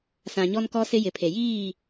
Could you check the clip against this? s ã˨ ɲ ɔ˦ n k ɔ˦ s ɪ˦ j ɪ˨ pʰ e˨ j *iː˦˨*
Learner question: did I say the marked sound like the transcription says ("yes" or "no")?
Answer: yes